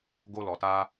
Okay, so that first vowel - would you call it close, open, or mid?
mid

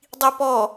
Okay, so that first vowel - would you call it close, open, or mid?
close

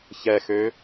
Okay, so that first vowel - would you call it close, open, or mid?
mid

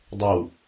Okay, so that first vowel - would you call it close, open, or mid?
mid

